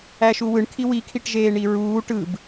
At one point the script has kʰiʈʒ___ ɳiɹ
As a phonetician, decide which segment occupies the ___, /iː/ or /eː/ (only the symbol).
eː